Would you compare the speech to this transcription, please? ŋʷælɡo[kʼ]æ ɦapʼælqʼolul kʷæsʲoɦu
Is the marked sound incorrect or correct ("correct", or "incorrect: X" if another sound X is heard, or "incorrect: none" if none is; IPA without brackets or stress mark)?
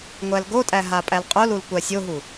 incorrect: tʼ